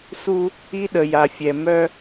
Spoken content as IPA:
s u˦ | i˦ ɗ ə˨ j a˨ fʲ ɛ˨ m œ˦

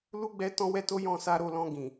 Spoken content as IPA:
l u˦ ɡ͡b ɛ˦ t ɔ̃˦ w ɛ˦ t o˦ j ɔ̃˦˨ s a˧ ɾ o˧ l ɔ̃˧ ɡ ĩ˨

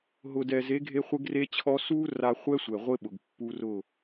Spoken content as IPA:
ɦ ʊ˨ d ɛ˨ z e˨˦ ɡʱ e˦ χʷ ɪ˦ ɡ r e˦ t͡ɕʰ ɔ˦ s u˦ r a˦ χʷ ɛ˦ sʷ ɛ˨ ʁʷ ɪ˦ ɓ ʊ˨ ɡ pː u˦ r ʊ˦˨

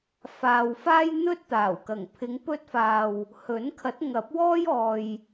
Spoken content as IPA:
f aː˨ w f aː˥ j n̪ ɵ˥ t̚ t̪ aː˨˩ w k ɐ˨˩ ŋ pʰ ɪ˨˧ ŋ p ɵ˧ t̚ f aː˨ w | h ɵ˨˥ n kʰ ɐ˨˥ t̚ ŋ ɐ˨˥ p̚ w ɔː˥ j ɔː˨ j

